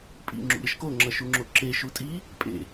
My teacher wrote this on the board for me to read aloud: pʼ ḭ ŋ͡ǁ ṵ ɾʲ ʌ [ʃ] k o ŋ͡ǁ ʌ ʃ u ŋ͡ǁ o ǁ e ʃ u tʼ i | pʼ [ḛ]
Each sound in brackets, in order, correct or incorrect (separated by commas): correct, correct